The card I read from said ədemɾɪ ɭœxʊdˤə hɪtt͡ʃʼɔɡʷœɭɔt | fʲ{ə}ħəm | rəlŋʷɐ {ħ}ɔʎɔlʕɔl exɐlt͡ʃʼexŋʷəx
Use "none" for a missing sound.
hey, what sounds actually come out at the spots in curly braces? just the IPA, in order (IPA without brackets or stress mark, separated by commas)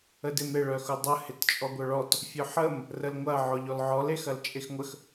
ʊ, ʕ